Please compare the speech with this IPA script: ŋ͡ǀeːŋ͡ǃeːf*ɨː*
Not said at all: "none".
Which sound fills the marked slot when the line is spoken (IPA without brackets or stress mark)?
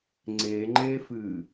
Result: ɨː